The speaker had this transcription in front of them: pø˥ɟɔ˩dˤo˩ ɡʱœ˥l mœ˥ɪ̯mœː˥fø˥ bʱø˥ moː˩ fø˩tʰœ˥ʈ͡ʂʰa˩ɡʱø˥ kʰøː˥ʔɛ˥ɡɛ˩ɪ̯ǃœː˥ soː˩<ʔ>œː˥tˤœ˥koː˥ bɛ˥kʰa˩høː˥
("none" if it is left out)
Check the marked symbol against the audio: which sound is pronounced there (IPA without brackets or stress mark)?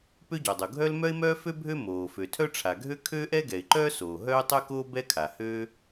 ɦ